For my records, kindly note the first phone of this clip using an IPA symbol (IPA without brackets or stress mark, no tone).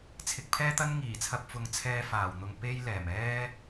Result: t͡sʰ